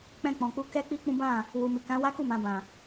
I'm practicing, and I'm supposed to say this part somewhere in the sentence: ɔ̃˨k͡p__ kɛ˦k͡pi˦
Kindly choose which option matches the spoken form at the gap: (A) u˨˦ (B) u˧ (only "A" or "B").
A